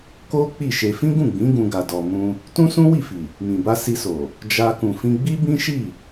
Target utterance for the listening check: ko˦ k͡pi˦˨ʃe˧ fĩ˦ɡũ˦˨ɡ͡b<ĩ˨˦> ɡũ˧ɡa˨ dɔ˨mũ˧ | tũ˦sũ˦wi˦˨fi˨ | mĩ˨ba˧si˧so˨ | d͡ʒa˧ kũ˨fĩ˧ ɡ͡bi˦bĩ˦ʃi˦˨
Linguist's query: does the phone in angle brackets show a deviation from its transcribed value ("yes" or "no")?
no